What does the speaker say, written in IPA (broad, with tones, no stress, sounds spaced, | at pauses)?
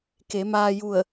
k e˩˧ m aː˧ j u˧˩ ə̯